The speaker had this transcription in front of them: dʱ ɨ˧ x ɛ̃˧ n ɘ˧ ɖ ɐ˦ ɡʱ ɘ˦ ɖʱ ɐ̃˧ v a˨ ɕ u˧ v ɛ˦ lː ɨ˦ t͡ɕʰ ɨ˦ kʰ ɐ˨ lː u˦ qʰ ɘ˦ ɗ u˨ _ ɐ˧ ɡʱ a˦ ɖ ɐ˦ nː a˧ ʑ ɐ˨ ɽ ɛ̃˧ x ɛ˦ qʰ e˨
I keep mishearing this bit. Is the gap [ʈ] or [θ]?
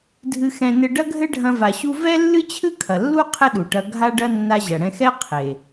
ʈ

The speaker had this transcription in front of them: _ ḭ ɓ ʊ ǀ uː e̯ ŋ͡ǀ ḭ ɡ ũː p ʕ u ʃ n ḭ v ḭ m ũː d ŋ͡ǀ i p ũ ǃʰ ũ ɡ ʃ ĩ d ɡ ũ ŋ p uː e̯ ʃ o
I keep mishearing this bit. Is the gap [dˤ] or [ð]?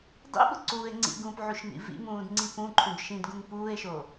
dˤ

